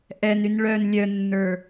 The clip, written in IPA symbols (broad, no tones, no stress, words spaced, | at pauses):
ʔɛnyn ɭœn lʲœnːə˞